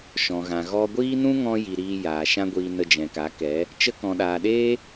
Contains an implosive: yes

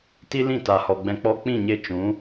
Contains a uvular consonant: no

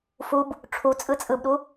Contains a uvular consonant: no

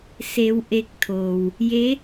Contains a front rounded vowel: no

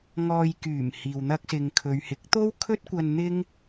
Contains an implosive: no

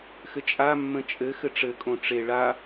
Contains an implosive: no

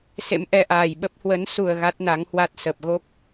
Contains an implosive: yes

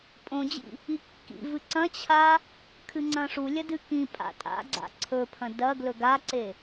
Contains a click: yes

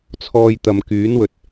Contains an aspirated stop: yes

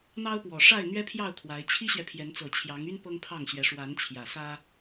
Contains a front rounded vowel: yes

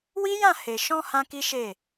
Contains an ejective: no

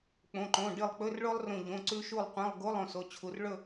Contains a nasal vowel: yes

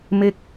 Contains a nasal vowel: no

